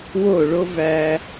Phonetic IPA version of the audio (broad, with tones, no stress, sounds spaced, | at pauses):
w o˥˩ ɭ o˥ v æ˧